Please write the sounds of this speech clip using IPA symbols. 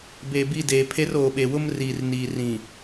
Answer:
b e˨ b i˦˨ d eː˨ pʰ e˦ r oː˨ ɓ e˨ w ʊ˦ m r iː˨ r n iː˨ r ĩ˨

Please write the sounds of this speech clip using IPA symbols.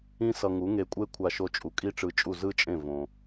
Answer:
ĩ˥ s ʌ˧ ŋ u˩˥ ŋ e˧ kʷʼ e˥ kʷʰ a˧ ʃ o˧ t͡ʃʼ u˩ kʼ i˥ ʈ͡ʂ ɯ˧ t͡ʃʼ u˥˩ z ɯ˥ t͡ʃʼ ẽ˥˩ v õ˩

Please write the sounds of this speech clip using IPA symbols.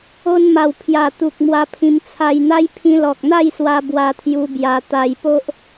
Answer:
o˧ n m a˨˩ w pʰ j a˨˩ t̪ u˨ k̚ m w a˧ pʰ ĩ˧ m t͡sʰ a˧ j n̪ a˦ j pʰ ĩ˧ l ɔ˨ k̚ n̪ a˥˧ j s w a˧ b w a˧ t̪ʰ j u˧ b j a˧ t̪ a˧ j p o˦ ʔ

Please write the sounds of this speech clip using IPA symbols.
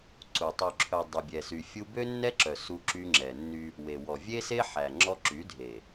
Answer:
ǀ u˨ tˤ y˨ ǁʰ œ˨ dˤ y˨ bʲ ɛ˨ s y˨ fʲ u˦ b ø˦ nː ɛ˦ ǁ œ˨ s u˦ ǁ y˦ ŋ͡ǁ ɛ˨ nː y˦ | w e˨ w ɔ˨ vʲ e˦ s e˦ ħ æ˨ ŋ͡ǁ ɔ˦ ǁ y˨˦ dʱ e˨

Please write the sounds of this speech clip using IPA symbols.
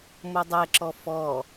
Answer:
m o dˤ ɛ ǁ ɔ f ɔ

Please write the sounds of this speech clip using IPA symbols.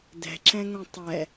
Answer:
d ɛ̤ ǁ ɛ̃ ŋ õ tˤ ɛ

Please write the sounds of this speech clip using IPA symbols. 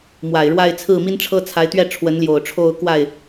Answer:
m w a˨˩ ɪ̯ ɻ w a˥˧ ɪ̯ t͡sʰ ɹ̩˥˩ m i˥ n ʈ͡ʂʰ ɤ˥ t͡sʰ a˧˥ ɪ̯ t̪ ɥ ɛ˥˩ ʈ͡ʂʰ w ə˧˥ n l j o˨˩ ʊ̯ ʈ͡ʂʰ o˥˧ ʊ̯ k w a˥˩ ɪ̯

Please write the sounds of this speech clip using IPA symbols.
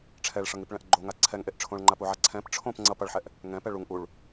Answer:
ʈ͡ʂʰ ɛ ɭ ʂ ʌ ŋ i p ɭ ɛ̃ ʔ ɡ͡ǃ o ŋ a ǀʰ ɛ ŋ ʔ e ʔ ʈ͡ʂʰ õ ɭ ŋ͡ǃ a p u ʕ a ǀʰ ɛ̃ p ʈ͡ʂʰ õ p ŋ͡ǀ ʌ p ʌ ɭ ħ ɛ ʔ | ŋ ɛ̃ p ɛ ɭ u ŋ ʔ u ɭ

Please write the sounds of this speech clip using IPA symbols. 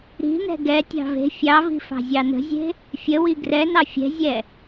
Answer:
ɾ i̤ n ɛ̤ ɡ ɛ tʲ ɑ̤ v e̤ fʲ ɑ v i̤ f ɑ̤ zʲ ɑ n ə̤ zʲ e̤ | fʲ ə w i ɡ r ɛ n ɑ fʲ ɛ̤ zʲ ɛ

